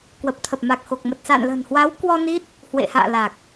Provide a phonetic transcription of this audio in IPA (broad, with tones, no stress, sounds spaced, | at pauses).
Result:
k w ə˨˩ p̚ t̪ʰ ə˨˩ p̚ m a˨˩ k̚ x o˨˩ k̚ m ə˨˩ t̚ s a̰ː˧˨ n l ə̤˨˩ n h w a˨˦ w k w ɔ˧ n i˦˥ t̚ | h w ḛ˧˨ h a̰ː˧˨ l a˨˩ k̚